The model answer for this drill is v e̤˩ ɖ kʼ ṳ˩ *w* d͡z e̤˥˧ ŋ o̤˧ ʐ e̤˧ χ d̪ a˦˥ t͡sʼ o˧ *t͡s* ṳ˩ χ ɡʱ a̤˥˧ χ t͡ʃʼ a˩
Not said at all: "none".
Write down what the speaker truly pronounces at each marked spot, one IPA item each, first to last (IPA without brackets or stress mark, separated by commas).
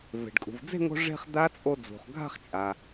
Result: v, d͡z